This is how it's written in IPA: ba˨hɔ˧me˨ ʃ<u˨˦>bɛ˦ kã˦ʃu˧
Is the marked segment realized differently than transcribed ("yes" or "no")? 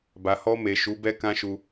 no